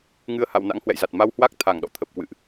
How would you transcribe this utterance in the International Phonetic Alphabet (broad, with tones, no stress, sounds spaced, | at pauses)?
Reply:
ŋ ɨ˧ ə̯ h a̰˧˨ w n a̰˧˥ ŋ h w ɛ̰˧˨ j z a˨˩ t̚ m a˧ w h w a˦˥ k̚ t̪ʰ a˧˩ ŋ ɗ ɔ̰˧˨ t̪ʰ ə˨˩ p̚ k w ɨ̰˧˨ ʔ